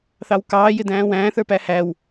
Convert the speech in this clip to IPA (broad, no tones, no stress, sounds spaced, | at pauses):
θ ɑ w k ɑː j ɪ d æ̃ː w æ̃ː θ ə˞ p æ h æ w